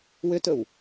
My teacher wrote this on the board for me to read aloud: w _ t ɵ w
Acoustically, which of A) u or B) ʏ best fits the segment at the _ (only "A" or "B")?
B